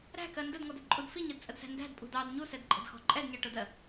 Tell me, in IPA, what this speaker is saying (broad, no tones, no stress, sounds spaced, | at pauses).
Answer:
ɾ æ̤ k ɜ n d ə d ŋ ɔ d ə d ǃʼ u d f i ɲ ɜ d t͡sʼ ə d s æ̤ n d æ̤ d pʼ ṳ d ɑ d ɲ u s ɛ d ǃʼ ə̤ d x ɔ̤ ǃʼ ɛ d ɲ ɑ ʈ ʊ d ɜ